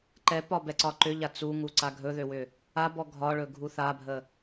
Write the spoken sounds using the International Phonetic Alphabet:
ǃ ɛ p ɒ b ɛ ǀ ɒ ǃ ʏ ʎ a t͡s u ŋ u ǀ a ɡʱ ɵ ð ø w ʏ | a b ɔ ɡʱ ɒ ɭ ɵ ɡʱ u θ a bʱ ə

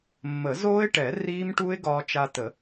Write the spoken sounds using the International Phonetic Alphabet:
mː ə˨˩˦ z oː˦˥ ɪ̯ ʈ ɛ˨˩˦ r iː˦˥ m ʈ u˦˥ ɪ̯ ɡ ɒː˧ t͡ʃ a˧ t ə˨˩˦

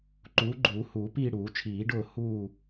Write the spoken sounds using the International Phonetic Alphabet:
ǃ uː˨˥ ɡ͡ǃ uː˨˩˦ h uː˨˩˦ p iː˦˨ ɽ uː˨˩˦ t͡ʃʰ iː˨˩˦ ɖ ʊː˦˨ h uː˦˨

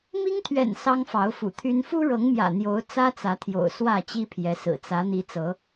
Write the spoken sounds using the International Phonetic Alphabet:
m i˦ ŋ t̪ʰ ɥ ɛ̰˨˩ n s ɑ˦ ŋ f ɑ˨˦ ʊ̯ f ṵ˨˩ t̪ʰ y˦ n f u˦ ɻ ɤ˨˦ ŋ m j ä̰˨˩ n̪ j o˨˦ ʊ̯ t͡s ä˦ t͡s ä˨˦ t̪ʰ j o̰˨˩ ʊ̯ s w ä˥˨ t͡ɕ i˦ pʰ j ɛ˨˦ s ɹ̩˨˩ t͡s ä˨˦ n̪ i˨˦ t͡s ɤ˨˦

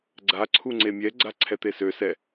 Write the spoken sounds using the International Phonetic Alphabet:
ɡ͡ǀ a ǀʰ u ŋ͡ǀ e mʲ ɛ ɡ͡ǀ a ǀʰ ɛ t̪ e s ø s ɛ

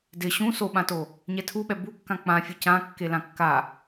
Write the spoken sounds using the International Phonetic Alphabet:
d ɪ ɕ ũ s o ɓ ã t o | ɲ ɛ tʰ u ɓ ɛ b u kː ã k͡p ã fʲ ʊ c ã kː e l ã kː a

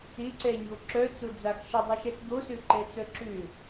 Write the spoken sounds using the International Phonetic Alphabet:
ɪ ǀ ɛ ɲ o ǁ œ t͡s ʊ d͡z a x ʃ ə dˤ y ʃ ɛ s d̪ o s ø ǃ ɛ t͡s œ ǁ ʏ

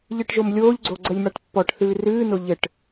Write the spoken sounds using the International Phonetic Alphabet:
ʎ ɨ ʈ ʒ o m lʲ oː ʎ ɡ͡ǀ o ɡ͡ǀ ə lʲ m a ʈ pː ɔ ʈ θ ɨː r ɨː n o ʎ ɘ ʈ

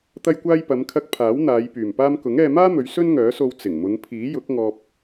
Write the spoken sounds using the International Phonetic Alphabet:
t̪ ɐ˧ j kʷ aː˧ j p ɐ˨˧ m kʰ ɐ˧ k̚ pʰ aː˨˥ w n̪ aː˨˧ j p yː˨˩ m p aː˧ m k ʊ˨˥ ŋ ɛː˧ m aː˥ m ɵ˨˧ ɥ s ɵ˥ n ŋ œː˨˥ s o˧ w t͡s ɪ˨˩ ŋ m ʊ˨˧ ŋ pʰ iː˨˥ j ʊ˨˥ k̚ ŋ ɔː˨ p̚

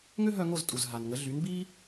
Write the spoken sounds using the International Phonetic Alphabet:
ŋ ø˥ ɦ œ˧ ŋ o˥˩ z tʼ u˩ z ɦ a˩ n ŋ ə˩˥ ɮ y˩˥ n b i˥

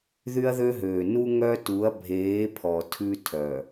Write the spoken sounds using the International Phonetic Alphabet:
ð y˦ ɐ̯ ð ø˦ ɦ øː˨ n u˦ ŋ œ˦ t u˨˦ ɐ̯ bʱ eː˨˦ pʰ ɔ˨ tʰ ʉ˦ tʰ œ˨

